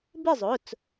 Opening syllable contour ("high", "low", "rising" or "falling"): falling